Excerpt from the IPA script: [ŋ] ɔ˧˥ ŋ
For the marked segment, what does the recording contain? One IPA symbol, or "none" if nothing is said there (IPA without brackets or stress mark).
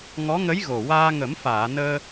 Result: ŋ